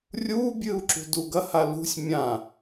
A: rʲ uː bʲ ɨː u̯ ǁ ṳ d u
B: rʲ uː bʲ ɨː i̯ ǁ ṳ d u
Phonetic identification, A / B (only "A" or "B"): A